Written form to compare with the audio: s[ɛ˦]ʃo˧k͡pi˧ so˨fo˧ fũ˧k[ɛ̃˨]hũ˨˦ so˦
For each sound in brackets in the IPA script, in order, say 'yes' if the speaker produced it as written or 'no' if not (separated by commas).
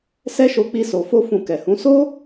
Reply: yes, no